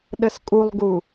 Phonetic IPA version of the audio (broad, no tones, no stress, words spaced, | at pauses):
ɗəskʼulˠɡu